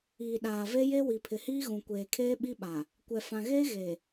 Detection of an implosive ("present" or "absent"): present